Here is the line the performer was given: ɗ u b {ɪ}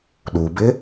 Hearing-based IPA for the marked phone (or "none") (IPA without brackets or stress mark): ɪ